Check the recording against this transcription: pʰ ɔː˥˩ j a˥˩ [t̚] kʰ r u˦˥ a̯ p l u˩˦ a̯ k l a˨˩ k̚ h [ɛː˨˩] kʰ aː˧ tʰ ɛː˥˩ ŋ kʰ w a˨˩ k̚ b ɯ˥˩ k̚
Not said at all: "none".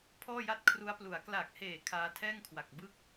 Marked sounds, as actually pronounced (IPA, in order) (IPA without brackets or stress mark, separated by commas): t̚, eː˨˩